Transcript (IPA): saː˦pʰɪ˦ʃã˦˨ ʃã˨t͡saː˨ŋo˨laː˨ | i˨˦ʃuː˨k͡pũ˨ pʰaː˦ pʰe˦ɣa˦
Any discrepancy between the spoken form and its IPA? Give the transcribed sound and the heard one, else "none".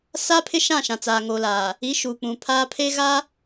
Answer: none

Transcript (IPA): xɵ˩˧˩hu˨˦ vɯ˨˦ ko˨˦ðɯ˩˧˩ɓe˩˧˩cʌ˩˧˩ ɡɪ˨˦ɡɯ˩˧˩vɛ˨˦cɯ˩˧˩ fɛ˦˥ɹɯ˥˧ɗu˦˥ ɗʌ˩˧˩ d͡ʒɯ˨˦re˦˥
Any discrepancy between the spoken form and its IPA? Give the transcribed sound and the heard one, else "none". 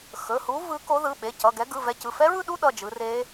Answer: ɪ˨˦ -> ɛ˨˦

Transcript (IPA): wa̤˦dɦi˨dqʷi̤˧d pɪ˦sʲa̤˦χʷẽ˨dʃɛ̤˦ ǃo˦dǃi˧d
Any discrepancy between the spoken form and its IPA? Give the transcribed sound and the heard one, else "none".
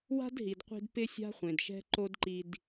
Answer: none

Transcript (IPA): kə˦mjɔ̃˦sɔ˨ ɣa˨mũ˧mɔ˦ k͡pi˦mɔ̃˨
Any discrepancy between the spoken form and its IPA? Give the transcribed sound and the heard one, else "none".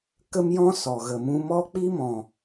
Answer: a˨ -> ə˨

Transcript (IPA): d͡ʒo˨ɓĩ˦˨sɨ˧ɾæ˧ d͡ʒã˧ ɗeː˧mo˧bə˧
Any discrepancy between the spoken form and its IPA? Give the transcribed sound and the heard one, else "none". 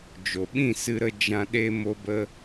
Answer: æ˧ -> ə˧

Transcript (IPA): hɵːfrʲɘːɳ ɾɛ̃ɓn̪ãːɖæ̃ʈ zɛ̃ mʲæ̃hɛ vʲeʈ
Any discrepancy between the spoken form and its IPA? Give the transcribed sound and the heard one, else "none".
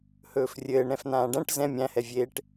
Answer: ɓ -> f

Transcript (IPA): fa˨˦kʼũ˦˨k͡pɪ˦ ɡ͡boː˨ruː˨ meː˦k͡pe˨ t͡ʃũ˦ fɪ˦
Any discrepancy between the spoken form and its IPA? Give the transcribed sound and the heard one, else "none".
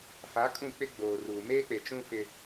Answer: none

